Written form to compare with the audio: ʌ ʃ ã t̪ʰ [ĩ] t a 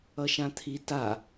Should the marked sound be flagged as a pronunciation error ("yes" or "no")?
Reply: yes